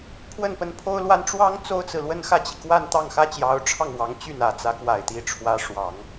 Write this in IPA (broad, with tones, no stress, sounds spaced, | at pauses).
pʰ w ə˥˩ n p ə˧˥ n pʰ o˥ ʊ̯ l w a˥ n ʈ͡ʂ w ɑ˥ ŋ t͡s o˥ ʊ̯ t͡s ɹ̩˨ l w ə˥ n x ä˥˩ t͡ɕ i˩ k w a˥˧ n t̪ ɑ˥˩ ŋ x ä˥ t͡ɕ j ɑ˧˥ ʊ̯ ʈ͡ʂʰ ɑ˥˩ ŋ w ɑ˧˥ ŋ t͡ɕ y˥˩ n ä˨˩ t͡s ä˧˥ k w a˨˩ ɪ̯ t̪ i˧˥ ʈ͡ʂʰ w ä˧˥ ʂ w ɑ˨˩˦ ŋ